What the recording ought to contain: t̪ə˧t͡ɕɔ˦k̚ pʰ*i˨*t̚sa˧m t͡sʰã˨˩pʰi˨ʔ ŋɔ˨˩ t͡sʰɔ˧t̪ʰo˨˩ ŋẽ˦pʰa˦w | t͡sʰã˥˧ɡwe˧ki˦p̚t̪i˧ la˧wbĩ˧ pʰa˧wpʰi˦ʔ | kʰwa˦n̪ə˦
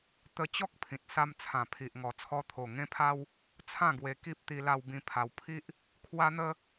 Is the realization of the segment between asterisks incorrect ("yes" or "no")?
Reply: yes